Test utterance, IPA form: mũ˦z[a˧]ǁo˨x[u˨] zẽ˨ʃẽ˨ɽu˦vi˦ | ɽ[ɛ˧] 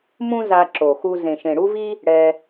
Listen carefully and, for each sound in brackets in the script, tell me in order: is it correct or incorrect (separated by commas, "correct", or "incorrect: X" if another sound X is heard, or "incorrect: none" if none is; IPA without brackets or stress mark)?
correct, incorrect: u˧, correct